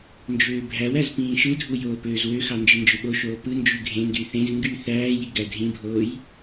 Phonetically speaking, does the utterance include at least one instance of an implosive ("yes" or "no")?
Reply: yes